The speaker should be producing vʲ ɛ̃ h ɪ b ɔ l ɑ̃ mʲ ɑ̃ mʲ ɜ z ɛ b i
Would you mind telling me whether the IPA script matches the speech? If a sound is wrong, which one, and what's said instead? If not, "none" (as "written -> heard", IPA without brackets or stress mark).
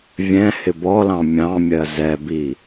none